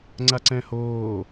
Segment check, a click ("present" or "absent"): present